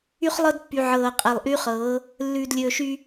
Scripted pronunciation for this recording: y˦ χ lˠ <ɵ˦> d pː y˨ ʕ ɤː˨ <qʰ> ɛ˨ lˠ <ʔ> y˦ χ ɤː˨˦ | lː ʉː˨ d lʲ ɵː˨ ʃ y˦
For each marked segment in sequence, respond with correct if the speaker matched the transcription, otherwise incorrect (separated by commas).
incorrect, incorrect, correct